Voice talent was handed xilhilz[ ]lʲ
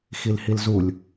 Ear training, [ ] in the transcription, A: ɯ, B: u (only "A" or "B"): B